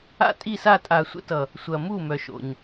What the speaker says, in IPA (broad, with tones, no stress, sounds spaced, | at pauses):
a̰˦ tʼ i˦˨ s a˦˨ tʼ a˨ sʷ ə̰˧ t ʌ˨ | sʷ ɐ˨ m u˦˨ m œ˨ ʃ o̰˨ ɲ